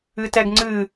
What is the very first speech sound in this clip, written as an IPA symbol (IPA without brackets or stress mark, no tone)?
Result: ɨ